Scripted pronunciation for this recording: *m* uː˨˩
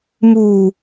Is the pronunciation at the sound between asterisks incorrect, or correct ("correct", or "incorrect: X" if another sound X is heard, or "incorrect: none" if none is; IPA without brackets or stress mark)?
correct